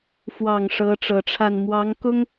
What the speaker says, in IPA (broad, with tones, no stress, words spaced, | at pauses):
fwɑ˨˩ŋ ʂɤ˧˥ʈ͡ʂɤ˨˩ʈ͡ʂʰa˥˩n mwɑ˧˥ŋkʊ˥ŋ